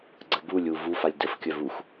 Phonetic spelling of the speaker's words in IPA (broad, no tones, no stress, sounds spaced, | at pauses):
ɡ͡ǀ ə b u lʲ u v u f a lʲ d ə f kʲ œ v u x